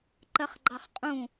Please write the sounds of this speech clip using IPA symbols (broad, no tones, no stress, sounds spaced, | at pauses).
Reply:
ǃ ɜ χ ɡ͡ǃ ɑ χ qʼ ũ